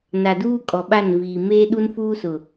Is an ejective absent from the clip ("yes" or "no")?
no